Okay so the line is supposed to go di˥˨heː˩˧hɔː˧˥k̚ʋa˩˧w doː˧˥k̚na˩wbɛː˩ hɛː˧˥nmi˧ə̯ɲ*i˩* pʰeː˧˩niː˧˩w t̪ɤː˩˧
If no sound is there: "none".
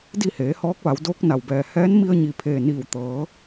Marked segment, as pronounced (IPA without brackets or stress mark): i˩